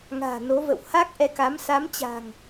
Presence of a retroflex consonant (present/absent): absent